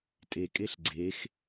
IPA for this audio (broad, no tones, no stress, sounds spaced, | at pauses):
tʼ e kʼ e ɬ ɡ͡ǀ e x